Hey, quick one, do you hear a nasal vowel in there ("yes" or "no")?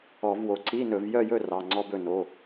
no